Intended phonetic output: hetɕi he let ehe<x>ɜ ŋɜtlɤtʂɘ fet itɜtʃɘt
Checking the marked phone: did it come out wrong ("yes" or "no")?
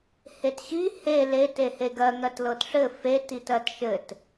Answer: yes